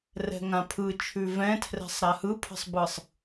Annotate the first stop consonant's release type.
aspirated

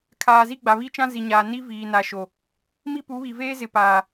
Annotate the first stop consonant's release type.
aspirated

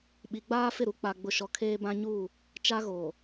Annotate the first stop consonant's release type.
implosive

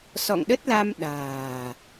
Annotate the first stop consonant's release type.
implosive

